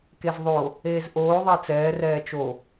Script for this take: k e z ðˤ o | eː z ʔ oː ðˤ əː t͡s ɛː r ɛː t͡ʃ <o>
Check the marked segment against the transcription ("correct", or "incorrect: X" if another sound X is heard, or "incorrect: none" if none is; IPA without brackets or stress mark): correct